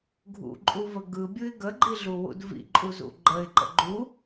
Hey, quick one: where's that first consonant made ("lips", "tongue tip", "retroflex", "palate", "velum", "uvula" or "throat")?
velum